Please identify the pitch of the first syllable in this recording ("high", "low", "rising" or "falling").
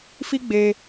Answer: high